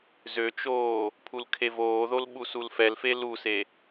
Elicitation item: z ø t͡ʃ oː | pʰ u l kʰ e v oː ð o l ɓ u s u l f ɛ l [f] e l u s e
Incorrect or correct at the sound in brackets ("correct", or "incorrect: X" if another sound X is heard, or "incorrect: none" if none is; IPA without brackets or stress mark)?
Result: correct